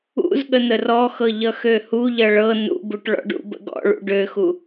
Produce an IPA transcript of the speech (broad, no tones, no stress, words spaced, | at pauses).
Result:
ṵzɠə n̪ərɔxɤ ʎʌxøhuʎʌ ɭɤ nṵbuʈ ɭɔ̰ɖṵbə̰ ɡɔ̰ɭṵ ɖøxu